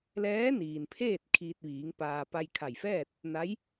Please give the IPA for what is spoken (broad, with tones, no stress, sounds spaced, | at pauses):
l ɛː˧˥ n iː˩ n pʰ eː˥˨ t̚ kʰ iː˧ t̚ ʋ iː˩˧ ŋ p aː˧ p a˧ j kʰ a˧˩ j f ɛː˥˨ t̚ | n a˧˥ j